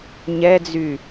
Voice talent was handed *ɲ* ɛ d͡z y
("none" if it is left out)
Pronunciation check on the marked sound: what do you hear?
ɲ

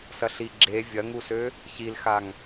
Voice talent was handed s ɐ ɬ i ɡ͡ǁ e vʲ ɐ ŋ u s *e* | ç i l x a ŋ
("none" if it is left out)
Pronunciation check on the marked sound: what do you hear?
ø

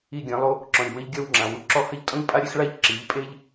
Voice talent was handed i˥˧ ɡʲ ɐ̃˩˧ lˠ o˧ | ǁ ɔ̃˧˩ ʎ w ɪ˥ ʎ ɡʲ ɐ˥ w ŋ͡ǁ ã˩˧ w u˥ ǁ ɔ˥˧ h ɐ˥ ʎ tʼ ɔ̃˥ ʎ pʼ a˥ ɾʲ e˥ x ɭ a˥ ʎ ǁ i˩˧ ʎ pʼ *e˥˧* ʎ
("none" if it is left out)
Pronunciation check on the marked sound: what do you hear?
e˥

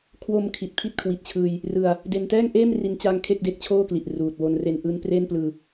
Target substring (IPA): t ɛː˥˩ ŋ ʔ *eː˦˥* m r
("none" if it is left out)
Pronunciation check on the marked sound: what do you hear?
eː˥˩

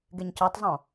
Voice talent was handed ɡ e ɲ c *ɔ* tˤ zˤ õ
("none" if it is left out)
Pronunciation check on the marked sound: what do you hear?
ɔ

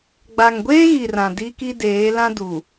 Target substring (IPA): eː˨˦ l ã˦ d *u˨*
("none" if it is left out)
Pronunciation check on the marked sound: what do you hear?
u˨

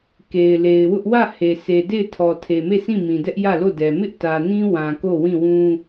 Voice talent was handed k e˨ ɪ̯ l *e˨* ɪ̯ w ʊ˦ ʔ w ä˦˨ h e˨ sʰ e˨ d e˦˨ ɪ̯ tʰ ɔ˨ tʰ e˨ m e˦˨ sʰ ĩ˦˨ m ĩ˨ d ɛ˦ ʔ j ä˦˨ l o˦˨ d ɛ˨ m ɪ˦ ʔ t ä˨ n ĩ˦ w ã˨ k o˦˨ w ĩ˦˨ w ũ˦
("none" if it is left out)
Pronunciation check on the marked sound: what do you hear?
e˨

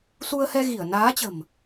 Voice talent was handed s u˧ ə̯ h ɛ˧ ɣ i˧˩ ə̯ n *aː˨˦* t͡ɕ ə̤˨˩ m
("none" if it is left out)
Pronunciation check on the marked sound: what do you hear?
aː˨˦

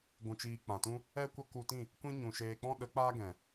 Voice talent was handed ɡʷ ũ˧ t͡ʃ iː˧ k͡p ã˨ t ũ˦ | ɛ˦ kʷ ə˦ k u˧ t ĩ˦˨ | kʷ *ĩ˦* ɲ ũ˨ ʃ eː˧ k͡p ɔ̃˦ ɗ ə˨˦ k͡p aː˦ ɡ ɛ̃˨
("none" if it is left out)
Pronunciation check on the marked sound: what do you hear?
ĩ˦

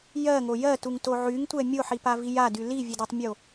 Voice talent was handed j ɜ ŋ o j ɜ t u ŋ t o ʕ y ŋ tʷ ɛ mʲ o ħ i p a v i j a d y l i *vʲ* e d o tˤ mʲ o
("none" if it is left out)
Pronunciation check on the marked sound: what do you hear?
vʲ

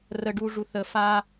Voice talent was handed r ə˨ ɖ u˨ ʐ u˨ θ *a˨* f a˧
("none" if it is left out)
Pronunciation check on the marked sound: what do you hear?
ə˨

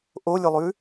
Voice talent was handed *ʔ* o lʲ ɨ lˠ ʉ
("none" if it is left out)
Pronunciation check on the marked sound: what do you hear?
ʔ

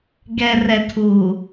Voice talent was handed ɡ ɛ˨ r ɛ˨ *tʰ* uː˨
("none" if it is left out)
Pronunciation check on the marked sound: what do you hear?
tʰ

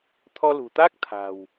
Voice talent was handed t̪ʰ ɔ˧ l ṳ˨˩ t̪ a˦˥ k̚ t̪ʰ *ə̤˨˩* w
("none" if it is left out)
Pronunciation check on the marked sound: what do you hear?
a̤˨˩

